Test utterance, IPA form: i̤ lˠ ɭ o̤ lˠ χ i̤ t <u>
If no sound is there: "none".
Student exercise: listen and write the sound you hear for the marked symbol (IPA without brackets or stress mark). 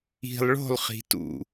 ṵ